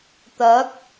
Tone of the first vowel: rising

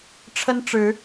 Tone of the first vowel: high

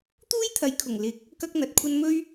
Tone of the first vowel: high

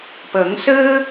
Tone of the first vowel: rising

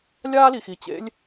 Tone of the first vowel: high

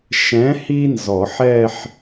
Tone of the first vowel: rising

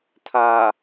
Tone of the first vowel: low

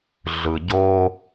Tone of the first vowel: low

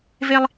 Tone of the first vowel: high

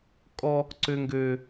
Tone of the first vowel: high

